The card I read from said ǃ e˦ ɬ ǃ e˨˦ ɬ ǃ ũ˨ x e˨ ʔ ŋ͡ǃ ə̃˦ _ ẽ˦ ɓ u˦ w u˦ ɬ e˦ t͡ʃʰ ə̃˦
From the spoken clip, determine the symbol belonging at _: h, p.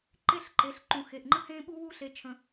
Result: h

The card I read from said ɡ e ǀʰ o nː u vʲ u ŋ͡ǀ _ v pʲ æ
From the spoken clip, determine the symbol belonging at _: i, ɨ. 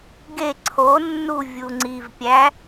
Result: i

